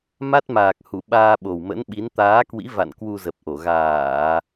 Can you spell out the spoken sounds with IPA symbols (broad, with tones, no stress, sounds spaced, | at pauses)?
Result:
m a˦˥ t̚ m aː˨˩ k̚ h u˧˩ ɓ aː˧ ɓ o˨˩ w m ə̰˧˥ n ɓ i˨˦ n t̪ aː˨˦ k w ḭ˧˥ v a̰˧˨ n k w u˧ z ə˨˩ p̚ ʔ o˧˩ ɣ aː˧˩˨